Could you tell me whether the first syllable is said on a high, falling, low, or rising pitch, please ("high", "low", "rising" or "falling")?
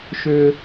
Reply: high